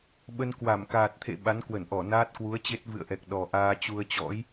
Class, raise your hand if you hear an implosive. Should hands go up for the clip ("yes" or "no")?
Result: yes